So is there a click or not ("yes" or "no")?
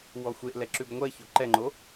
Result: yes